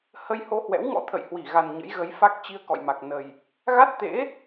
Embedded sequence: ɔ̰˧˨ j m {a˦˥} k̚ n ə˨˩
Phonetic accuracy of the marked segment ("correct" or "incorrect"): incorrect